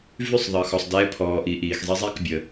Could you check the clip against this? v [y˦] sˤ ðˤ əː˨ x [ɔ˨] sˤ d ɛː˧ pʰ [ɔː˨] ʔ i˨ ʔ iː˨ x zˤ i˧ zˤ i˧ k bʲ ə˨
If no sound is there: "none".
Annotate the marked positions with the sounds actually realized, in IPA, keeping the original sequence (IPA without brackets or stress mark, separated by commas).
y˦˨, ɔ˨, ɔː˨